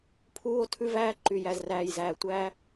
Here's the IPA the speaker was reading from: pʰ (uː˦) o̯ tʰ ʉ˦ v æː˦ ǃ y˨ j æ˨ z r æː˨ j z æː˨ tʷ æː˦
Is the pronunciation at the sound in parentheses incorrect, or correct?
correct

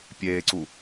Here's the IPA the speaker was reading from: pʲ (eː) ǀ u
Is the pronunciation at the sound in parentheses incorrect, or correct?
correct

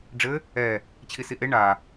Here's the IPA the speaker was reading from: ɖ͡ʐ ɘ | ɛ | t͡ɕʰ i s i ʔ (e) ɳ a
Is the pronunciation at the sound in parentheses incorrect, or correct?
correct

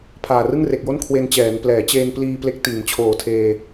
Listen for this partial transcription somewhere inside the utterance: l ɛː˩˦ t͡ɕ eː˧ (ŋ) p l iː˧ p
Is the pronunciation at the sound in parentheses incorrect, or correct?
incorrect: n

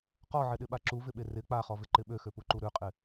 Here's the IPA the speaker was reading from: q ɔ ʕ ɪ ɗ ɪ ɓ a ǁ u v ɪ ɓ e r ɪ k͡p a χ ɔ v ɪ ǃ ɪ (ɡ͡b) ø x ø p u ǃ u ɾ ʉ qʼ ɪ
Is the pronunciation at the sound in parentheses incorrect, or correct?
incorrect: ɓ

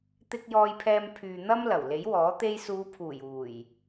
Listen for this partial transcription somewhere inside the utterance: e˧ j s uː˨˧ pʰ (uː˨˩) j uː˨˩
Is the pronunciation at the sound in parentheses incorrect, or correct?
correct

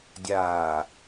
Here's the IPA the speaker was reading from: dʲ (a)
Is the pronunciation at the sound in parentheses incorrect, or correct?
incorrect: aː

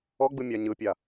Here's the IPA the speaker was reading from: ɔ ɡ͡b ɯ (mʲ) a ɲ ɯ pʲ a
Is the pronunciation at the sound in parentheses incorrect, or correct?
correct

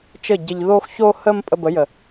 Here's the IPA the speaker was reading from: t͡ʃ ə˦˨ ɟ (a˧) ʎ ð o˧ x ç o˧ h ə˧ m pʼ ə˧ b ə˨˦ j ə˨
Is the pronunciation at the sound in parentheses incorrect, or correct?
incorrect: ə˧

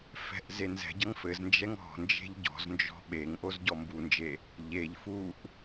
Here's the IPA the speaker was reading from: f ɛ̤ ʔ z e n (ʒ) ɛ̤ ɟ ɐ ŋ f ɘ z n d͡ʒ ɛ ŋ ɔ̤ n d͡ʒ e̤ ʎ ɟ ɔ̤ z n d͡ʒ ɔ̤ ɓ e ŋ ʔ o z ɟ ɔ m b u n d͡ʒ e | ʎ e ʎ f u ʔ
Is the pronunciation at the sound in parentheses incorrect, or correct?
incorrect: z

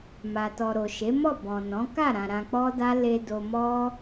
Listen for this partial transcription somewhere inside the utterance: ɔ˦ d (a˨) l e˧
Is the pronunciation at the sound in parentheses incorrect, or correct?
incorrect: a˦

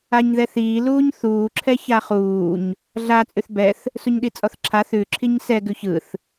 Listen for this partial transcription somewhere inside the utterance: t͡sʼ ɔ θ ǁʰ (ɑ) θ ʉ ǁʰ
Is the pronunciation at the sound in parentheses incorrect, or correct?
incorrect: a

